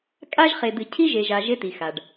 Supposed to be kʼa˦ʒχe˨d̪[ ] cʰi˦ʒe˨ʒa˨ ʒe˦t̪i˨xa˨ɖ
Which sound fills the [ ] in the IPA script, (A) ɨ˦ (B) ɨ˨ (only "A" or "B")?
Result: B